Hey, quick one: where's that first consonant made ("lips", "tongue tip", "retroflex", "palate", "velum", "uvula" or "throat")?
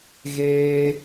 velum